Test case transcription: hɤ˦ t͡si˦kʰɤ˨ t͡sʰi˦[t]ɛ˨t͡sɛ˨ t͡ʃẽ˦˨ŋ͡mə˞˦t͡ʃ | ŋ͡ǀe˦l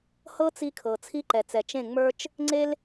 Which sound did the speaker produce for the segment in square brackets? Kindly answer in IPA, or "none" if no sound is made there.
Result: ǃ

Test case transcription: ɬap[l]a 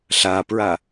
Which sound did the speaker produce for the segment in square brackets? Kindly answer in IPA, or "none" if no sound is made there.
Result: ɹ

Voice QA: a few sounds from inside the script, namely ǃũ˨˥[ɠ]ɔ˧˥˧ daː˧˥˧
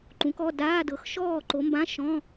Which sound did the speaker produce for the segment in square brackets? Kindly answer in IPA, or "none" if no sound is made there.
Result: k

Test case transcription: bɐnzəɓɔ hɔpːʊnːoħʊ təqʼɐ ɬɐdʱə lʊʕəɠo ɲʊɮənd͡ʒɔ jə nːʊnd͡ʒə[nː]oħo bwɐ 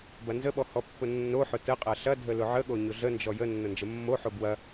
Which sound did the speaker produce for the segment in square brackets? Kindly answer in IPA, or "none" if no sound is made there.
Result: mː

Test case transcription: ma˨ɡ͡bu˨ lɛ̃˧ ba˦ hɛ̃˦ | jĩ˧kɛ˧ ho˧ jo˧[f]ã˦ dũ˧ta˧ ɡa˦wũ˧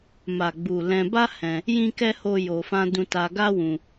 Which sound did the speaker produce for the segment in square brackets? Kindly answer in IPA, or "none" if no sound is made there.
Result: f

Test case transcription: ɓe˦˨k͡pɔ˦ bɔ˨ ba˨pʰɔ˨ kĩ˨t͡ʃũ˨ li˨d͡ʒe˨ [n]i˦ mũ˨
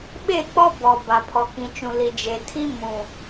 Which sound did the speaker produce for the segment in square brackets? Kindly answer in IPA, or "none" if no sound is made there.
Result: tʰ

